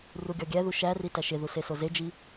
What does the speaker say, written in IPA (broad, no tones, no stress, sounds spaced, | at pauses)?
r u ɡʲ ɒ ɡʲ æ ð u ʃ æ r i t æ ʃ e ð u s e s o z e d͡ʒ i